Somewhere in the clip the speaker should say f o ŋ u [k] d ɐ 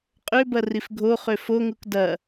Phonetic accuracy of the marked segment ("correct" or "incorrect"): correct